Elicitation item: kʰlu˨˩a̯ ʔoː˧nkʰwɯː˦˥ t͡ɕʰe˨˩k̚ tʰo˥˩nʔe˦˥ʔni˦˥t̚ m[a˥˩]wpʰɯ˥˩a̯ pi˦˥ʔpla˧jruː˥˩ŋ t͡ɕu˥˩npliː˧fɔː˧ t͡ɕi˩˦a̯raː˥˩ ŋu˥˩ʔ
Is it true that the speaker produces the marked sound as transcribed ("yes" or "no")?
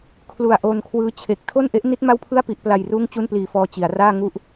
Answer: yes